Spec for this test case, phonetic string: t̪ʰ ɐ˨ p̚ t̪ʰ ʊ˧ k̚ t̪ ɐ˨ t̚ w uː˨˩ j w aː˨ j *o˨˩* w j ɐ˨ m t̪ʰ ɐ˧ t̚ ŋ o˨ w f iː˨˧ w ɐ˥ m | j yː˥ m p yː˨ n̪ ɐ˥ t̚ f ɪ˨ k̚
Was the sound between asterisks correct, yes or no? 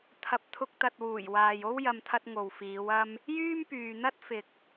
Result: no